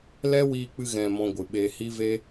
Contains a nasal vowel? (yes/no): yes